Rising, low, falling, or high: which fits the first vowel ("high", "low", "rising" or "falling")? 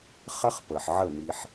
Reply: high